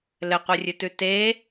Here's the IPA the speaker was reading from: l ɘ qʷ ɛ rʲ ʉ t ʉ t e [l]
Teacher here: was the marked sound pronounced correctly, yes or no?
no